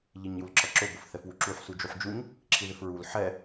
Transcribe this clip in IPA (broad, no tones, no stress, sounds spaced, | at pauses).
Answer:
ʎ i ɲ j u l ǁ ʌ ǁ ʊ b ʊ f θ ɛ f w u ǁ u ħ s u d͡ʒ u ħ d͡ʒ u ɲ | ǁʰ i ð ɪ f ɹ u l ħ ɛ